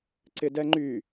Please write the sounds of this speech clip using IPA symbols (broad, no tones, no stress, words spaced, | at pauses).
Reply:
ǀɪdɛŋ͡ǃy